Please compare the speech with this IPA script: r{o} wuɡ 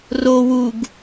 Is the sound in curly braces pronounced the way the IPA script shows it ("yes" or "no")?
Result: yes